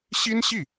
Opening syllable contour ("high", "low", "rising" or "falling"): high